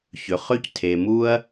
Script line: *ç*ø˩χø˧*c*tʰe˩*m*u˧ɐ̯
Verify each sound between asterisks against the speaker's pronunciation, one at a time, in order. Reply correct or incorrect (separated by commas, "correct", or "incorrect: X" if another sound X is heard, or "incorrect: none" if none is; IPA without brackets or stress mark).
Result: correct, correct, correct